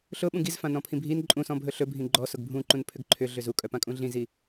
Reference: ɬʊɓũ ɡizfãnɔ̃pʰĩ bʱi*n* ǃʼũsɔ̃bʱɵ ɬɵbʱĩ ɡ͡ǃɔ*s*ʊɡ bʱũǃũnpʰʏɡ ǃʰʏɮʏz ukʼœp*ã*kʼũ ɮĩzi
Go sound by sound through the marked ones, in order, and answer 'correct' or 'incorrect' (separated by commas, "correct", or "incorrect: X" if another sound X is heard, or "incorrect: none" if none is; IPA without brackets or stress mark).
correct, correct, correct